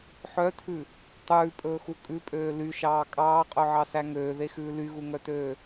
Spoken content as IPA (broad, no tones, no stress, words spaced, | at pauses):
ħœtʰʉ | tˤʉːpʼɵːxu kʼʉpʼøː lyʃɑː kʼɑːqʼœʕɑsæ ŋøːðexʉː lyɣuŋœtøː